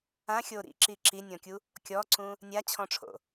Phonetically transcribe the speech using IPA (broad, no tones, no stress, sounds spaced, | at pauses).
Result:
ã xʲ o ɾ ḭ ǁ i ǁ i nʲ ɔ̃ kʲ u | kʲ ɔ ǀ ũ | nʲ a t͡ɕʰ ɔ̃ ʈ͡ʂʰ o̰